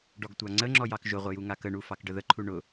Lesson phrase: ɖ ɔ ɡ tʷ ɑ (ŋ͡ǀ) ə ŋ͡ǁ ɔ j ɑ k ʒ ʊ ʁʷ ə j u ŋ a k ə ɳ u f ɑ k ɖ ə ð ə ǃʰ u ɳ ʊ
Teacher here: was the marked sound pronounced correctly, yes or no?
yes